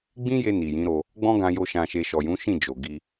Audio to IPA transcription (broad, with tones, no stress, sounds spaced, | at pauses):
ɡ͡b ĩ˦ j e˧ n i˨ j ĩ˨˦ ɾ o˧ | ɡ͡b ɔ̃˦ ɡ ã˧ j o˧ ʃ ã˧ ʃ e˧ ʃ ɔ˨ j ũ˨˦ ʃ ĩ˦˨ d͡ʒ o˨ ɡ i˧